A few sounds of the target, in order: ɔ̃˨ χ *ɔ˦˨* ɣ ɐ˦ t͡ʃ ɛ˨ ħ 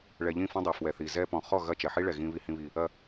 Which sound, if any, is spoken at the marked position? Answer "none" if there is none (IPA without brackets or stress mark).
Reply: ɔ˦˨